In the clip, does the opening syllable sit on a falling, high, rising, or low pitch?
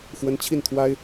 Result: rising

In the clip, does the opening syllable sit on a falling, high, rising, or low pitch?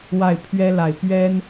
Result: falling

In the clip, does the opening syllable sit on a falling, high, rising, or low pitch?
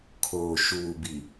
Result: low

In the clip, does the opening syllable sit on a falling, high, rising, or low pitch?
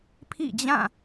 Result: falling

